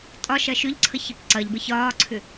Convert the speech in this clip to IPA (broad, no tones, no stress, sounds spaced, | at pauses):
tʼ ɒ ʃ ɐ ʃ ʏ ʎ ǀʰ ə ç ɐ p ǀ ɐ ʎ b ə ç ɒː ǀʰ ʏ